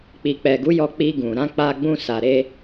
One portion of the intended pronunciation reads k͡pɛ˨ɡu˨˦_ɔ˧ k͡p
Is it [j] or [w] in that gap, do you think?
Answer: j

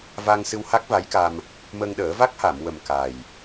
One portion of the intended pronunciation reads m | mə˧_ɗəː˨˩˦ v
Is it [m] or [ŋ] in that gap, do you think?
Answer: ŋ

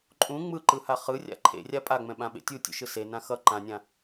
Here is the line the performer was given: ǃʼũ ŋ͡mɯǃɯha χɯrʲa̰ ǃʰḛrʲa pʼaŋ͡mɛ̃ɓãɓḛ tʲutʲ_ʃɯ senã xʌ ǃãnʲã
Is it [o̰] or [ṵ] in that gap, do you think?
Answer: ṵ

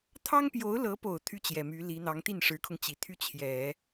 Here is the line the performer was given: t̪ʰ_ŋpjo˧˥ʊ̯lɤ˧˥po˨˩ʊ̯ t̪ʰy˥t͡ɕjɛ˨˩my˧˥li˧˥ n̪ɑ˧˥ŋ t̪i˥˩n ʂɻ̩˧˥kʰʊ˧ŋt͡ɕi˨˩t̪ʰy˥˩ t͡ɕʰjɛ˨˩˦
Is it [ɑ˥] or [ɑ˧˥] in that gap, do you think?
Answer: ɑ˥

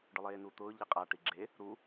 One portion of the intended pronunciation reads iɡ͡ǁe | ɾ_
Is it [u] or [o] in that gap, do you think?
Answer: u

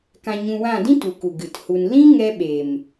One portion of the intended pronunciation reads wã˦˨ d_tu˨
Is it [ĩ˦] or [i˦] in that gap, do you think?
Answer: ĩ˦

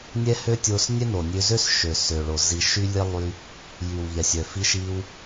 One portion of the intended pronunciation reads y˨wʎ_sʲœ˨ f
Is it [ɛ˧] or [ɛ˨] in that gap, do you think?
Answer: ɛ˨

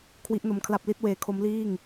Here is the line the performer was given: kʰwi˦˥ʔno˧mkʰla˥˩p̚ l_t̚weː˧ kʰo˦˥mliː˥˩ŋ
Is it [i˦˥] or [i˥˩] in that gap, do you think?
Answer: i˥˩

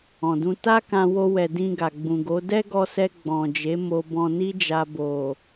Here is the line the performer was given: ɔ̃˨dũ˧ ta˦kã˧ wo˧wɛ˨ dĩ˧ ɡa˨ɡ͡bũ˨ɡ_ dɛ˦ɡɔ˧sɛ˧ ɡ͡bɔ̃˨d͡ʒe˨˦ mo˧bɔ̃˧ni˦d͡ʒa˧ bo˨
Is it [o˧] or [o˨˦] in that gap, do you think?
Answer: o˨˦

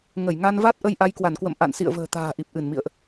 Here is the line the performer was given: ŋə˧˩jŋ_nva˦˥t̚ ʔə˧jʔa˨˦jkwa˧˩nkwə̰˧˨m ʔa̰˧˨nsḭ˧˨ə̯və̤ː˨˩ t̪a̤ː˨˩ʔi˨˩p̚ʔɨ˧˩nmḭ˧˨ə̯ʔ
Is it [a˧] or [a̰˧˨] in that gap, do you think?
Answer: a˧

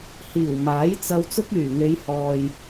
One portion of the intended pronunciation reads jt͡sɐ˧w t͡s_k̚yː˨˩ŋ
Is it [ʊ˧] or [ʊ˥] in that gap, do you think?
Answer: ʊ˥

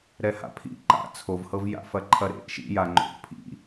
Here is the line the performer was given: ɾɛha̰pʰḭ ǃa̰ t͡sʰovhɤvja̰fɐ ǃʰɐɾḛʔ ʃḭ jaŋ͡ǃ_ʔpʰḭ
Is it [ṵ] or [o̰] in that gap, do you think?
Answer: o̰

